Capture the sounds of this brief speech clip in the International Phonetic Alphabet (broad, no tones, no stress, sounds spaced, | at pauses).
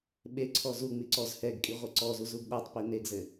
ɓ e ǀʰ ɔ z u ŋ͡m i ǀ ɔ z h ɛ ɡ kʼ i ʁʷ ɘ ǀ ɔ z u z u ɡ ɗ a tˤ p i n e ɡ z ɘ